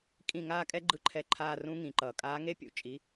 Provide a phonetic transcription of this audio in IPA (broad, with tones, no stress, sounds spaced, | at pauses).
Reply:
kʼ ĩ˦˨ ŋ aː˦˥ kʼ ɛ˦˥ ɡ͡ǃ ɯ˦˨ ǃʰ ɛ˦˨ ǃʰ aː˦˨ r ũ˦˥ ŋ ĩ˩˧˩ ǃ ʌː˩ kʼ aː˨˥ ŋ e˦˥ pʲ ṵ˨˥ t͡ʃʼ i˩˧˩